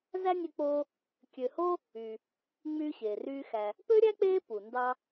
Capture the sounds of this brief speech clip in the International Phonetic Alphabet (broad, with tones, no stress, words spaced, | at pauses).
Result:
zæ˥nʲø˦k͡poː˦ | kʲø˨ho˥ | y˩ | ŋ͡myː˦ɕeː˩ryː˦xæ˨ | pø˥ɾʲæ˥k͡peː˦ pu˩ndɑ˦